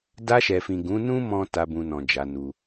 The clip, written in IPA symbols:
da˧ʃɛ˨fĩ˨ ɡũ˨˦nũ˦ mɔ̃˦ta˧ bũ˧nɔ̃˨ d͡ʒa˨˦nu˧

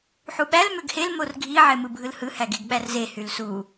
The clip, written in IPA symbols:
ħuɓæl møɡhel morɡʱi ʕemɯbʱɯlhɯ hæɡeɡɓærze hylsu

